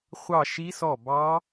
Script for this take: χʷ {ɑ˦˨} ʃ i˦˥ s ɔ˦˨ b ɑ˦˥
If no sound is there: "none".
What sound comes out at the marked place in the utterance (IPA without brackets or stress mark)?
ɑ˦˨